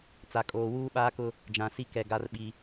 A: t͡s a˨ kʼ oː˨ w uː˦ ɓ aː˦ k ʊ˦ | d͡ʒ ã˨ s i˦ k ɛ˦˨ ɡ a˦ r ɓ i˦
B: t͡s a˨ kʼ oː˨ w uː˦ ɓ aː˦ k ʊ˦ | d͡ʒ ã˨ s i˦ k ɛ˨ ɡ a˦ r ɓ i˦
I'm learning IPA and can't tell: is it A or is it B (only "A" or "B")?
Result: B